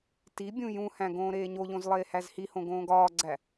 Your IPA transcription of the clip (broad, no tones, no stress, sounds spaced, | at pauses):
t i bʲ ũ j ũ h æ̃ ɡ õː ɾ eː ɲ o ʎ õ z lˠ eː h æ z h i h õ ɡ õː ɡ ɒː ɡ͡ǀ æ